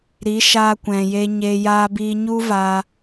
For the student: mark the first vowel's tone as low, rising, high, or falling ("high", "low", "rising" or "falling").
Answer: rising